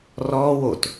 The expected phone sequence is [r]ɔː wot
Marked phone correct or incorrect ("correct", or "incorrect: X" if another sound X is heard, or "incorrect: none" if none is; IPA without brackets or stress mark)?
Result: correct